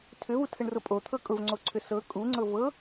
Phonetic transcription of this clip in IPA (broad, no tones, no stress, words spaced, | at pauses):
tʰʏvutʰəɳrʊ pʼot̪ʰɤ kʼʊvŋ͡ǀoǀʰʏ sɤ kʼuŋ͡ǀɤ vɤ